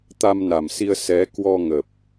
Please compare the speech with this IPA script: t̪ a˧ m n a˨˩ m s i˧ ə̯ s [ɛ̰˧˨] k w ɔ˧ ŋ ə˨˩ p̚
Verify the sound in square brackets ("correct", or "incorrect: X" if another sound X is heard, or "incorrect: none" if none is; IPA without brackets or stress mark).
incorrect: ɛ˨˦